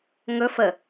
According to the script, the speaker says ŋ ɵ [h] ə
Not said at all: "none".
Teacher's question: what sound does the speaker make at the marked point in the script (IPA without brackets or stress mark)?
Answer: f